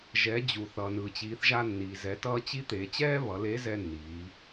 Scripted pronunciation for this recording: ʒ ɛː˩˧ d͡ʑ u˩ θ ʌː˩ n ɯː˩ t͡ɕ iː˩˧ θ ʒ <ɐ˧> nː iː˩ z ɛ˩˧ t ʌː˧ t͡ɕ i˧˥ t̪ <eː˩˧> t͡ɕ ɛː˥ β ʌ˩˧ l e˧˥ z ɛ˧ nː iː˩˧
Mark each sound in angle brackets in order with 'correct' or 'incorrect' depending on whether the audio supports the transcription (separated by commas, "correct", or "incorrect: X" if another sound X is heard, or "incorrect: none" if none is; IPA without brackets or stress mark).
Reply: incorrect: a˧, correct